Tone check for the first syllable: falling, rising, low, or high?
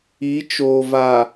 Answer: rising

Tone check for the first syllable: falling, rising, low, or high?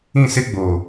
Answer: falling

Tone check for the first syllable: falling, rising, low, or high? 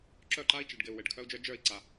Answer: falling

